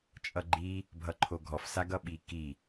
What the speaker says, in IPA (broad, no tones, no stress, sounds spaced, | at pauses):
t͡ʃʼ ʌ ɡ͡ǃ i | bʱ ʌ ǃʰ o ɡʱ ɔ f s a ɡ ʌ ɓ i k i